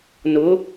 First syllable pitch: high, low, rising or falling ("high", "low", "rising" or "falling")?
rising